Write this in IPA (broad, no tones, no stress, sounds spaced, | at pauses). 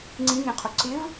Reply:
ŋ͡ǀ ĩ ŋ ẽ qʰ o ǀ ɪ v